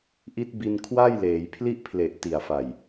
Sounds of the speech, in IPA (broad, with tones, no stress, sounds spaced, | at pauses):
ʔ i˦˥ t̚ b i˧ n kʰ w a˥˩ j l eː˩˦ j pʰ l i˥˩ ʔ pʰ l e˨˩ ʔ t i˨˩ a̯ f a˨˩ j